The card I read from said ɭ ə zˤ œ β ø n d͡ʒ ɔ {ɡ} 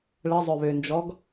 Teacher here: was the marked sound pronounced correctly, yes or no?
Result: yes